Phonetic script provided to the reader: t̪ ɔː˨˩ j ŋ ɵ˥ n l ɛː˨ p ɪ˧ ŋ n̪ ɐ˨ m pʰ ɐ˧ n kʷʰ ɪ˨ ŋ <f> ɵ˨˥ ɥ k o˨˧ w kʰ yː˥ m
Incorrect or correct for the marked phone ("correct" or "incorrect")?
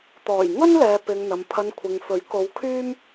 correct